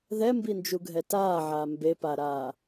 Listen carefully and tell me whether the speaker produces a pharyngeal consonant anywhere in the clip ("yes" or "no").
yes